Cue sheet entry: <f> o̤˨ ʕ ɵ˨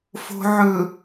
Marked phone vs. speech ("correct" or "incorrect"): correct